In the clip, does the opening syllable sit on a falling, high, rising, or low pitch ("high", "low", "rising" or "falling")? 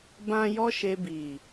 high